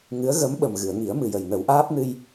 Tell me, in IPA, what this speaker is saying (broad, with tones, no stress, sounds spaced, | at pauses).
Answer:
ŋ ɨ˧˥ ə̯ ɣ ə˧˥ m ɓ ə˨˩ m ɣ ɨ˨˩˨ ə̯ ŋ i˨˩˦ ə̯ m ɨ˨˩ j ə˨˩ j n ə˨˩˦ w ʔ aː˦˥ p̚ n ɨ˧ j